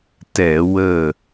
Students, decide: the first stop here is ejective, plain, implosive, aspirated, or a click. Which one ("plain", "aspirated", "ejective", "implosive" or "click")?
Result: plain